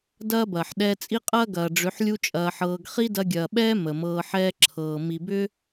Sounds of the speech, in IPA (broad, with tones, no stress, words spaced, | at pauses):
dɐː˦bɐː˨ħ ɗɛː˧t͡sʼi˦qʼɐː˦ ɡɐː˨ɖ͡ʐʏ˨˦ħ lʲu˦t͡ʃʼɐː˧ħɤː˧ɡ χi˦dɐ˧ɡʲɐː˨ɓɛː˦ mə˨ mɤː˧ħɛː˦ǁʰɤː˨ mi˨bʏ˦